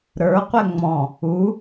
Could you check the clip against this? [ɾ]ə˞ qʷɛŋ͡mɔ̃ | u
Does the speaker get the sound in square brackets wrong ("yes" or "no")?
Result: no